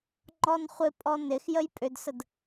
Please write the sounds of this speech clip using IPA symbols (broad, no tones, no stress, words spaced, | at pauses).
ŋ͡ǃɔnχʷɪpʼɔ nɪx jəjpʼʏdsəd